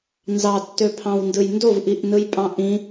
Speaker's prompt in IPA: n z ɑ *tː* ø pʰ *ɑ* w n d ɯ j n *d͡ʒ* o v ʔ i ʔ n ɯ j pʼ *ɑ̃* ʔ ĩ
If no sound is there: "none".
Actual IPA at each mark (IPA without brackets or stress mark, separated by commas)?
tː, ɑ̃, d, ɑ̃